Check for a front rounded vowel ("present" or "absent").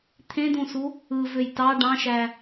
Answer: present